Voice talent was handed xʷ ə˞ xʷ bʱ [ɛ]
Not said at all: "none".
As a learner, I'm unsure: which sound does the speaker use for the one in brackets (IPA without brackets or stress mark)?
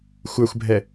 ɛ